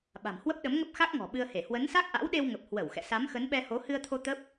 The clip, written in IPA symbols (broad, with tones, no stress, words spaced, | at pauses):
ɓa̤˨˩mhwə˦˥p̚ ɗə˨˦mŋə˦˥p̚xa˦˥k̚ŋɔ̤˨˩ ɓɨ˧ə̯he˧˩ hwə˨˦nsa˦˥k̚ʔa̰˧˥wɗe˧w ŋə˨˩p̚hwə˧˩w xɛ̰˧˨sa˨˦m xə˨˦nɓɛ˧ho˨˦ hɨ˧ə̯t̪ʰo˧ t̪ə˦˥p̚